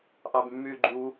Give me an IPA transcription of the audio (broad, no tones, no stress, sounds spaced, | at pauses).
ʔ ɑ b mː yː ɡ͡ǃ u